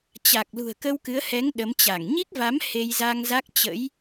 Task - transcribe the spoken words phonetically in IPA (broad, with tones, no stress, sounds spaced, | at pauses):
t͡ɕ a˨˩ k̚ l ṳ˨˩ ə̯ k ə˧ w k ɨ˨˦ ə̯ h ɛ˨˦ ŋ ɗ ə˨˦ m t͡ɕ a˧˩ ŋ ɲ i˦˥ k̚ v a˨˦ m h e˧ j z a˧ ŋ z a˦˥ k̚ t͡ɕ ə̰˧˥ j